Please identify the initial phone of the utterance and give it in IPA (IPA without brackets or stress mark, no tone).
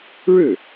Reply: ɻ